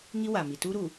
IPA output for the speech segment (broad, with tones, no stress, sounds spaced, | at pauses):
ŋ i˦ w a˨ m i˨ t u˦ ɾ u˨